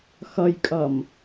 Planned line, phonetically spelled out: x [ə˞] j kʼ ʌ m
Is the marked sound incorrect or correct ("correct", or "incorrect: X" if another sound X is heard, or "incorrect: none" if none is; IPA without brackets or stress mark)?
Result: incorrect: ʌ